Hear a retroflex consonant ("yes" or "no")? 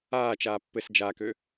no